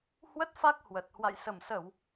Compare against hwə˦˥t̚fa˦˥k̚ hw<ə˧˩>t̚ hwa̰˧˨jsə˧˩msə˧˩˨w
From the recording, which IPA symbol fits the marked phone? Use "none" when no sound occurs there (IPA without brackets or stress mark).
ə˨˩